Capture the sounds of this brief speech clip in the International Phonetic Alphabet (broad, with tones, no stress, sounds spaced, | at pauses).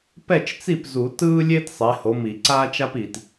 p ɛ˥˩ t͡ʃ t͡s i˥˩ p z u˨˩˦ t ɯː˥ lʲ eː˥ t sˤ e˨˦ h o˨˦ m i˨˩˦ ǀ aː˥ t͡ʃ a˥ p i˨ t